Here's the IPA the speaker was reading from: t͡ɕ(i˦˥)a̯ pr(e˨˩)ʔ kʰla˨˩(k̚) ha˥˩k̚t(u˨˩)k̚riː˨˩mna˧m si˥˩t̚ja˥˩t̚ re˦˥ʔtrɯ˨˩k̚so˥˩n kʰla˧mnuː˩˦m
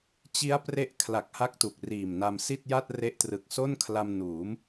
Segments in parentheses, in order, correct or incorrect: correct, incorrect, correct, correct

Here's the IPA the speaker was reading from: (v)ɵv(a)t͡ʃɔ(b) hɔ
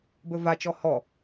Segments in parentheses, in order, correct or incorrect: incorrect, correct, incorrect

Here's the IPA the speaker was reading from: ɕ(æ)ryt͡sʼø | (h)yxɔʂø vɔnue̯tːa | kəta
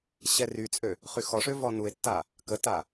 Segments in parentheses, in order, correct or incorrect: incorrect, incorrect

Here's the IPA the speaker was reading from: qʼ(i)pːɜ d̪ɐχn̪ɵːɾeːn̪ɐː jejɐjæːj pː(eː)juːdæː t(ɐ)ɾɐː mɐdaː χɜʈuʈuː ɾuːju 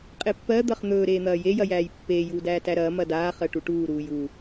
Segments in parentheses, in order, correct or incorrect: incorrect, correct, incorrect

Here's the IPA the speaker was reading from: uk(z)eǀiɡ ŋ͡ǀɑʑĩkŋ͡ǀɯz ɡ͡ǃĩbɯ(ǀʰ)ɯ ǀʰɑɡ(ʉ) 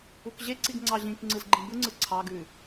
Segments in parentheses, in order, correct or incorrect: incorrect, incorrect, correct

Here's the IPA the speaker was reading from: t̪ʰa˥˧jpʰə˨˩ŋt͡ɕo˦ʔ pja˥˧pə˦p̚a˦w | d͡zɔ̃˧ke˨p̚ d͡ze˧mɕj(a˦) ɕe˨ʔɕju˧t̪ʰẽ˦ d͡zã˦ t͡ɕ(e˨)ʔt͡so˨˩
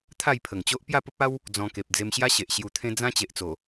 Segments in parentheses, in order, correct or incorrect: correct, correct

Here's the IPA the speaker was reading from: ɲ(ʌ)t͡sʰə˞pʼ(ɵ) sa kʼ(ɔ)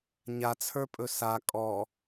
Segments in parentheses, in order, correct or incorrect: incorrect, correct, correct

